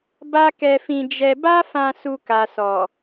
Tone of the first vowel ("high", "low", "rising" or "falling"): high